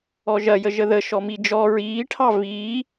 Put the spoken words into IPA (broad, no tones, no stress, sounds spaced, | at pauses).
ɔ ʒ ɐ j ə ʒ ə ð ə ʃ ɔ m i d͡ʒ ɔ ɹ iː ʈʰ ɑ v iː